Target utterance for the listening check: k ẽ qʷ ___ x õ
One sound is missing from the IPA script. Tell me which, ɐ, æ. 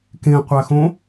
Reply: æ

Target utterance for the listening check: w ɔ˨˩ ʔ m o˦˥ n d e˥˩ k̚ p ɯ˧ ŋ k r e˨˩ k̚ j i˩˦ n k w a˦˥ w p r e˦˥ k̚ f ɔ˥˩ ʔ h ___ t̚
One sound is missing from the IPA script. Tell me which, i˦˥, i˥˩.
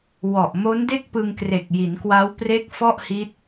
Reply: i˦˥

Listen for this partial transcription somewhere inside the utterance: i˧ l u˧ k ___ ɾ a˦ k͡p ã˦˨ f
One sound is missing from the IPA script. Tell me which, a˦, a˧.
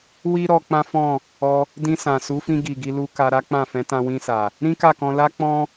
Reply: a˧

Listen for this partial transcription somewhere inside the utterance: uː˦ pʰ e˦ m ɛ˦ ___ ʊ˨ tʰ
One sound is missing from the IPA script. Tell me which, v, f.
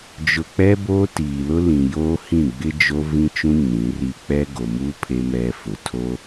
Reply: f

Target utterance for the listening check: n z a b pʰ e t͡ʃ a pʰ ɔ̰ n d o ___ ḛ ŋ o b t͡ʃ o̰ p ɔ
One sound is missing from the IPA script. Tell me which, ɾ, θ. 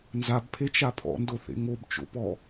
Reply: θ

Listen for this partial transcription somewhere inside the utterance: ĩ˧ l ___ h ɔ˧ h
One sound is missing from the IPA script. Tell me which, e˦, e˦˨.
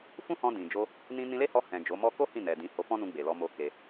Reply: e˦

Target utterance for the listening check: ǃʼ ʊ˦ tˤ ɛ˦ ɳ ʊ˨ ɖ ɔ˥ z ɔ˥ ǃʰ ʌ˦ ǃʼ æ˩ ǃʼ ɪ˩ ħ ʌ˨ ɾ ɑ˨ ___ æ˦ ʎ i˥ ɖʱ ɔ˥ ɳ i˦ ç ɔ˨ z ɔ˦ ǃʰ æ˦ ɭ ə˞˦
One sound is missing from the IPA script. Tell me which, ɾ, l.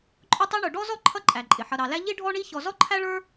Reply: l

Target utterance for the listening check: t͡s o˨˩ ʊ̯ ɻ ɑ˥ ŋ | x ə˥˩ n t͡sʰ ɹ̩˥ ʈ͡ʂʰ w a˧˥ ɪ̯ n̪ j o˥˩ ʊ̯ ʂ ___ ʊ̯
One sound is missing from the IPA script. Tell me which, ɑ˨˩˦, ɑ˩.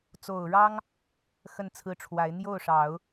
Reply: ɑ˨˩˦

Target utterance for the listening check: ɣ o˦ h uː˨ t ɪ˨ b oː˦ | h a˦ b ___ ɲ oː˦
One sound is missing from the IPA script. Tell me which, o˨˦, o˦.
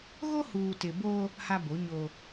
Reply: o˨˦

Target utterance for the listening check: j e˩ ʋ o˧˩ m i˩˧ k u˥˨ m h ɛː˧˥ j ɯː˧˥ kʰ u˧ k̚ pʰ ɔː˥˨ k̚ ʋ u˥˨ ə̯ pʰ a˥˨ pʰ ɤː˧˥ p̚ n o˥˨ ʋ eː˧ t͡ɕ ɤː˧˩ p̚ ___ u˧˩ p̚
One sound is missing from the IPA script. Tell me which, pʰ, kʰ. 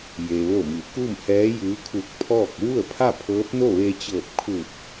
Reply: kʰ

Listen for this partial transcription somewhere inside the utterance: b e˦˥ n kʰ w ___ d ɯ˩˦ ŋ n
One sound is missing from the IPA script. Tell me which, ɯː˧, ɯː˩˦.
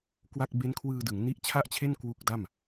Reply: ɯː˧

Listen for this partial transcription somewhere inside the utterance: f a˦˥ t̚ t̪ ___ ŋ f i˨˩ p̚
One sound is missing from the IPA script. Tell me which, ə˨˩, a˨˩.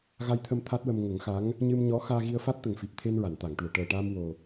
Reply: ə˨˩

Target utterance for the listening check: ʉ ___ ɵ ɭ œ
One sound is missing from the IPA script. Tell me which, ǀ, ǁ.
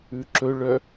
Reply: ǁ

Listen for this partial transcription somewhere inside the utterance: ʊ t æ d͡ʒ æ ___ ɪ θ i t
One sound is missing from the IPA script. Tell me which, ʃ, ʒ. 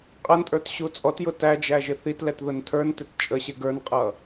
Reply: ʒ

